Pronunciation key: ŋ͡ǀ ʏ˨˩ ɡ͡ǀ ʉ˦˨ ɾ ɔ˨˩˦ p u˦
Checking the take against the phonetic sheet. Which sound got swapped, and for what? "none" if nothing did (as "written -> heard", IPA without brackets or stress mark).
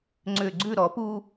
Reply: none